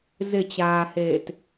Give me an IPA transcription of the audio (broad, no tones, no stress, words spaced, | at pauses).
zɪt͡ɕaːheːt